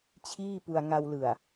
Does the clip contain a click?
no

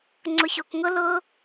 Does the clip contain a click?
yes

